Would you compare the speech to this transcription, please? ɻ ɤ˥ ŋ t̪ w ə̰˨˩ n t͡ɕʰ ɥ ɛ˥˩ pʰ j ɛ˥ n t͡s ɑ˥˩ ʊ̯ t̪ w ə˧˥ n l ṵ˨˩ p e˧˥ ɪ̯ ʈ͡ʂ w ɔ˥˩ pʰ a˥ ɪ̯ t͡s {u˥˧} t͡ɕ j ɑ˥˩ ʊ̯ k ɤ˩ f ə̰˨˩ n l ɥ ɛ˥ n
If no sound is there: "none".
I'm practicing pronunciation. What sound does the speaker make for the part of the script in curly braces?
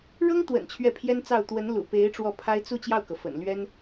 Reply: u˥˧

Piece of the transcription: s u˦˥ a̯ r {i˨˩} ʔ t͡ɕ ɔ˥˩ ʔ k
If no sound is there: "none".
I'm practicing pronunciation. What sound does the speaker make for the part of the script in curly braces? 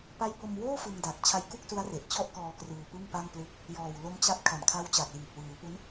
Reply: e˨˩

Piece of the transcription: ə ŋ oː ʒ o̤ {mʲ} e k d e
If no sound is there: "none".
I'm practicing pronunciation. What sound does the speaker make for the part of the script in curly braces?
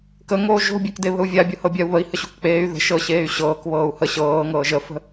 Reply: bʲ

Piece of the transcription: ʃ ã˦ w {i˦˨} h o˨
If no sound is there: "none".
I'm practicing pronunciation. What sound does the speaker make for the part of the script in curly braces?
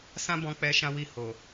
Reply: i˦˨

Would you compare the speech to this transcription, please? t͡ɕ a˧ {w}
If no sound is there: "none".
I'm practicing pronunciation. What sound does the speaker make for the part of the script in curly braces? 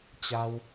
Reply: w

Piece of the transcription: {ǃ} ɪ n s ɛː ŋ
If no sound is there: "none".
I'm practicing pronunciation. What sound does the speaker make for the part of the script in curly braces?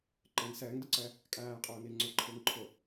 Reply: ǃ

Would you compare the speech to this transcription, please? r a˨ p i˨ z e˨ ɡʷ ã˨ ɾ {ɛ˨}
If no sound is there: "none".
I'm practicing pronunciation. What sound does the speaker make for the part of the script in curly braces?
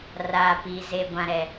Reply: ɛ˨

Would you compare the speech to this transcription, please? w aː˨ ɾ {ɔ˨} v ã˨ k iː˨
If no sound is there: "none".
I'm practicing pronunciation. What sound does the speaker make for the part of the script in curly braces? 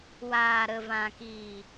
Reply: ə˨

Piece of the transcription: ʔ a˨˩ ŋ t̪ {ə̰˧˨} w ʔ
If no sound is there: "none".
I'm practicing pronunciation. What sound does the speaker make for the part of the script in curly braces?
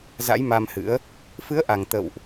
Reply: ə̰˧˨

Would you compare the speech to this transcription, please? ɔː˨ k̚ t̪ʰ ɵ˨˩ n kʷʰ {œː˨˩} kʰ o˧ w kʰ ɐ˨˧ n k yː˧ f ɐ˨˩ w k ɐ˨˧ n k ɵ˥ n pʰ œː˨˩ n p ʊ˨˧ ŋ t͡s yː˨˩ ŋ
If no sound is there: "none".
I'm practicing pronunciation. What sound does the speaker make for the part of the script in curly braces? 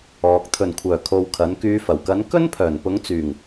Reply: œː˨˩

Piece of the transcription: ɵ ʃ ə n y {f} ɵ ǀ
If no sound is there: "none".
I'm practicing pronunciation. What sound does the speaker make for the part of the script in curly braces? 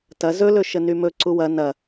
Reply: m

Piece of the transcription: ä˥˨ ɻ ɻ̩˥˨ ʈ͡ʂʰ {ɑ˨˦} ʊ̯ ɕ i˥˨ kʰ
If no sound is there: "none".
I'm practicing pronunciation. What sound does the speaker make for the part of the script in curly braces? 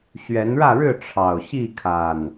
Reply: ɑ˨˩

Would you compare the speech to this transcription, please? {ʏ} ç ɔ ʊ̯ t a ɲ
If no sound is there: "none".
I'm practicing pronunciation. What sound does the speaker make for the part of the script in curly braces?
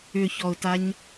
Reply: ʏ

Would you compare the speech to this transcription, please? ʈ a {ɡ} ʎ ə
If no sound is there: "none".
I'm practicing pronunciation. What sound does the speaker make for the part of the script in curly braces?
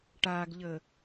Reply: ɡ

